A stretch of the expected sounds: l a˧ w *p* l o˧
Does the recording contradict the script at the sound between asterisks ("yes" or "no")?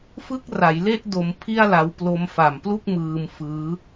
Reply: no